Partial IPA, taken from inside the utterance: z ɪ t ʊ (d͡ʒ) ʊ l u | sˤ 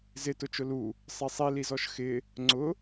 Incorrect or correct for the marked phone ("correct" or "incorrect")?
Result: incorrect